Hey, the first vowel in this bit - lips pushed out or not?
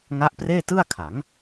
no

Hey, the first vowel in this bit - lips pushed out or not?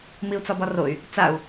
no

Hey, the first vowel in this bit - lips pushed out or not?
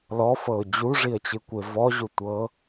yes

